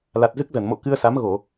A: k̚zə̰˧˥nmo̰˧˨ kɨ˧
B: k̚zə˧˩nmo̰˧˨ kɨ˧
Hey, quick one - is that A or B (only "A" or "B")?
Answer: B